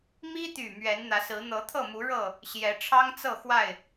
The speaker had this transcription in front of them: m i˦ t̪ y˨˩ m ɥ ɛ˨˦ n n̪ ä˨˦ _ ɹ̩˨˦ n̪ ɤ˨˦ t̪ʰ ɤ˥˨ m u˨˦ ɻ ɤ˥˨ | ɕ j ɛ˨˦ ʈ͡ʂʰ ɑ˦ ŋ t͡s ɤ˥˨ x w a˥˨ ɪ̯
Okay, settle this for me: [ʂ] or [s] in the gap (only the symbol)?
s